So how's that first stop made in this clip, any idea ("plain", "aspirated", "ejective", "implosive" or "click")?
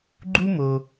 click